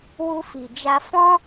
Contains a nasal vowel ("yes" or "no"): yes